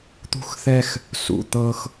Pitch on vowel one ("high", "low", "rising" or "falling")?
high